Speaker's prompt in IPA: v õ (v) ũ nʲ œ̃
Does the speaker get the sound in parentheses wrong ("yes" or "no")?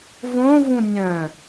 no